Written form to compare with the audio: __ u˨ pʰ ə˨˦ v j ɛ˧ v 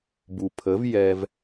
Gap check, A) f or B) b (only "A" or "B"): B